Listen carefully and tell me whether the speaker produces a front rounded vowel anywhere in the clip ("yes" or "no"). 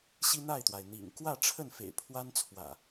no